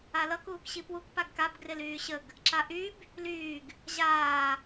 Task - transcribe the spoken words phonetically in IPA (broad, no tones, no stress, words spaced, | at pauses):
alʌ kuːkɕipwuk paɡkab ɡrɪlyːɕəɡ | ǁaʔyb | lyːɡ | ʑaː